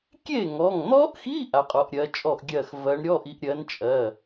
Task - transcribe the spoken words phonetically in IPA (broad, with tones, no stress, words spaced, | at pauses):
kʲe˥˩ŋɔ˩˧˩ŋn̪ɔ˦˥ʔxi˧˥˧ ʔa˨˦qʼɔ˨˦ʔɾʲɜ˨˦ t͡ʃʼɔ˥˩ʔɡʲɜ˥˩x vɜ˨˦ɳɾʲɔ˧˥˧ʔi˨˦ʔ ɾʲɜ˨˦nt͡ʃʼɜ˩˧˩